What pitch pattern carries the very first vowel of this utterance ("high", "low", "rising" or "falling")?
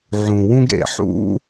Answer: low